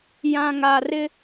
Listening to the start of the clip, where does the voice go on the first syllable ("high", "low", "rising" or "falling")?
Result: low